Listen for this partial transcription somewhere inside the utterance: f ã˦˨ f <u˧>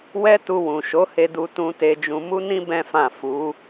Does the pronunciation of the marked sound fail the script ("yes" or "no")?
yes